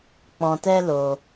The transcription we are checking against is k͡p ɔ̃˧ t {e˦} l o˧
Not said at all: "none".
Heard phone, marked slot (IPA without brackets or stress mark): ɛ˦